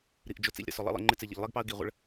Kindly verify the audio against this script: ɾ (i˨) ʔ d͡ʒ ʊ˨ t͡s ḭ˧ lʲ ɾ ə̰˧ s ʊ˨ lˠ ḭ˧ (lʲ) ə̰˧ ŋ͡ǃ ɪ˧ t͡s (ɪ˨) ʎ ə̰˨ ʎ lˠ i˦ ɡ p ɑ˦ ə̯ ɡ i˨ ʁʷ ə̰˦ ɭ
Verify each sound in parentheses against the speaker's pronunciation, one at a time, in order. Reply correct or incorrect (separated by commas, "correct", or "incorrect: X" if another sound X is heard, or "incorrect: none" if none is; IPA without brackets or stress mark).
correct, incorrect: lˠ, correct